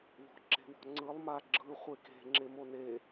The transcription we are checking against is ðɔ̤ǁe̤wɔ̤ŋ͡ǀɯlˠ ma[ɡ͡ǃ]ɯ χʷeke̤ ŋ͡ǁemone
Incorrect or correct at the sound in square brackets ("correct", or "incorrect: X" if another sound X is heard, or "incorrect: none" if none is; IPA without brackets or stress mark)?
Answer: incorrect: ɡ͡ǁ